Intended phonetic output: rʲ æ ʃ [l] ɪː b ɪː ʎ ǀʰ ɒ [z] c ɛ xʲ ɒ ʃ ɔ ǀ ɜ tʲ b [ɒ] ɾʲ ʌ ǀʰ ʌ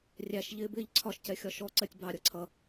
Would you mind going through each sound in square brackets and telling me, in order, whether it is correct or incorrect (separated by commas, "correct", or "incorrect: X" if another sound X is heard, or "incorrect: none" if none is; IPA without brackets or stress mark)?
incorrect: ʎ, incorrect: ʃ, incorrect: ɑ